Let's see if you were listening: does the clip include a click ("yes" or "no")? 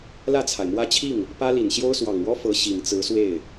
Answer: no